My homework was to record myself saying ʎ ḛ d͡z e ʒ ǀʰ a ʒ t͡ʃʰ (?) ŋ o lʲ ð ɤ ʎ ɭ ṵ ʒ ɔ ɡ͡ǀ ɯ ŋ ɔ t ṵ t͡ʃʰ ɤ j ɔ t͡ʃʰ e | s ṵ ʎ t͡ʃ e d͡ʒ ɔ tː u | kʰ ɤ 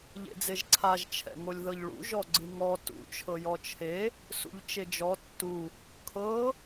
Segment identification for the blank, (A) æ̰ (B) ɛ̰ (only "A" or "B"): B